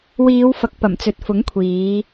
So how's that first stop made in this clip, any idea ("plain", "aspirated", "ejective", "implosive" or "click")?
plain